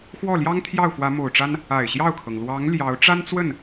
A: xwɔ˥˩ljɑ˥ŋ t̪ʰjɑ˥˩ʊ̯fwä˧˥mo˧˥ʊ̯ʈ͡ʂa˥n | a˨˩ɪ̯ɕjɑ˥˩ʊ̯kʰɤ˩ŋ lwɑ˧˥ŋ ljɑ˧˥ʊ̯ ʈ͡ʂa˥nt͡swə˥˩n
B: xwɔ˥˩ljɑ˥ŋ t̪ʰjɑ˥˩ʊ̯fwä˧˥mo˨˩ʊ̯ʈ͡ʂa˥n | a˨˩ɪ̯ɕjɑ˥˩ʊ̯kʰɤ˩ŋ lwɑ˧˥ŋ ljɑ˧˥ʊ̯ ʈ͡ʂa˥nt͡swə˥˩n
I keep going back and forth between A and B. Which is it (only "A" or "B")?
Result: B